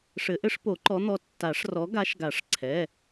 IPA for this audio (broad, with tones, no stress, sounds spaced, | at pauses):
ʂ ɘ˨˩˦ ʔ ɘ˨˦ ʂ p o˨˩˦ ǃ ɔ˨˦ n̪ ɔ˨˦ tː a˨˩˦ ʂ r ɔ˨˦ ɡ a˨˦ ʃ ɡ a˨˩˦ ʂ ǀʰ ɛ˩˧˩